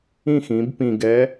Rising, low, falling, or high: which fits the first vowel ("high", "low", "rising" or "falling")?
falling